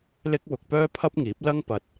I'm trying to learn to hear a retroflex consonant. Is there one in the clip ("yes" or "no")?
no